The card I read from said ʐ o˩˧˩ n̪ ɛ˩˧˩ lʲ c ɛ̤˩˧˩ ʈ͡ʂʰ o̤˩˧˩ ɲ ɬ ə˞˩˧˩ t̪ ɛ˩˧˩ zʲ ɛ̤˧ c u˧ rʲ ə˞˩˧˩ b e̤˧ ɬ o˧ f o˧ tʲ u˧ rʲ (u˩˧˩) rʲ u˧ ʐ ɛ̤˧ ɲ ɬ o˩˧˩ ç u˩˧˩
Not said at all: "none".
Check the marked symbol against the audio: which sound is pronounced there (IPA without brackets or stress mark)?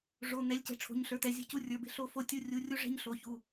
u˩˧˩